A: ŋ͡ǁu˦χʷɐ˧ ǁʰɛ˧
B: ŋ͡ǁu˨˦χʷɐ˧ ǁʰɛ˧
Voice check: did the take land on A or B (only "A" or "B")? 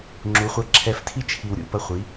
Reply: B